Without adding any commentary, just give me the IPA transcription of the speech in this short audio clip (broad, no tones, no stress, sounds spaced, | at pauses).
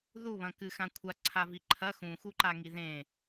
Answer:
ð u β ɐ̃ k ɨ x ã kʷʰ a ǀʰ a v i ǃʰ ɐ x ũ x u ǃ a ŋ i ð ẽ